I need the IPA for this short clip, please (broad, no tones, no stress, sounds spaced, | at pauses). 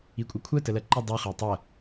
i kʷʼ ɯ kʷʰ ɜ t ə l ɜ ǃ i dˤ u χ e tˤ ɜ